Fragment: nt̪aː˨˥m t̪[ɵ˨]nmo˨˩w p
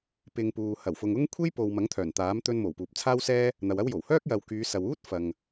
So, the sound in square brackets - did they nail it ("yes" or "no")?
no